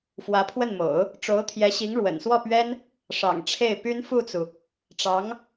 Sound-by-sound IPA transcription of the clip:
fwä˧˥pʰwə˥˩nmo̰˨˩˦ʊ̯ | ʈ͡ʂo˧˥ʊ̯t̪ʰjɛ˧˥ɕi˧˥ŋ ɻwə̰˨˩nswɔ˥˩pɥɛ˥n | ʂɑ̰˨˩ŋʈ͡ʂʰe˥˩ɪ̯ py˥nfu˥˩t͡su˩ | ʈ͡ʂɑ˧˥ŋ

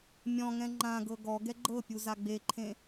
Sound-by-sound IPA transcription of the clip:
mʲɔ̃ŋɛ̃ ŋ͡ǃãɡɤ ɡɔɡɛ ɡ͡ǃɤpʲu zaɡ͡beǃʰẽ

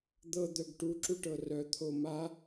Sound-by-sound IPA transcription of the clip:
d̪ɤ d̪œɡʈu ǁuʈɤrœ t̪ʰoma

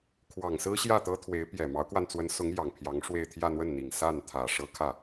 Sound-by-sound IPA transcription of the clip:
kʰwɑ˨˩ŋsɹ̩˥ɕjä˥˩ t̪ɤ˥t̪ʰwe˧˥ɪ̯ pjɛ˨˩mɑ˧˥ʊ̯kwa˧n t͡swə˧˥nsʊ˧˥ŋ jɑ˨˩ŋpʰjɑ˧˥ŋ ʂwe˥˧ɪ̯ t̪ʰjä˥˧n̪wə˥˩nn̪i˨˩ŋ sa˥˩nt̪ʰä˨˩ ʂɤ˥kʰä˥˩

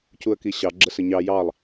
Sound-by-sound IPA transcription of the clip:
cuə̯kiɕɑ ɡ͡ǁəsəɲɑ jɑlˠ

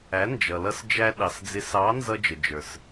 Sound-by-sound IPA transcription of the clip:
æ˩˥nd͡ʒʌ˩lʌ˧s d͡ʒæ˧ ɗɑ˩sd͡zɪ˩˥sɑ˩˥ nzʌ˧d͡ʒə˩d͡ʒə˞˩s

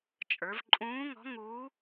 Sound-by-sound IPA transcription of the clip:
t͡ʃʼə˞˩˧vǃʼũː˧˥ŋɔ̤˧˥ŋuː˧˥

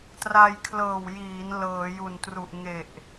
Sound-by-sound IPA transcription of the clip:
tra˧jkʰlɤː˨˩wjiː˩˦n lɤː˩˦ju˨˩ntru˨˩ʔ ŋe˨˩ʔ

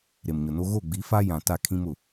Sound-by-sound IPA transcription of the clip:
ɾe˨mɲʊ˨no˦ ɣo˦˨ɡ͡bi˨˦fa˦ jã˨ ta˦˨kʰĩ˦mʊ˨

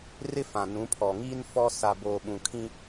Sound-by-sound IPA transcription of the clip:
rɪ˦fã˨nũ˨˦pʰɔ˨ ŋiː˦n fɔ˦ sa˨boː˨ɓũ˨kʰĩ˦

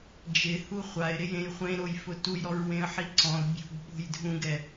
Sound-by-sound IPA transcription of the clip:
d͡ʒɪ huχʷaɪ̯ ɾɪjẽjχʷẽ ɾojfʊtuj ɾɔɹwẽə̯ħiǀɔ̃ʊ̯ bʲṳɡ ɓo̤jdʱũɡ ɛ

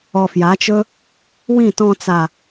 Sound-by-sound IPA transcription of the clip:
ɔ˨fja˨˦t͡ʃɵ˦ | wĩ˦˨tɔ̃˧ t͡sa˨

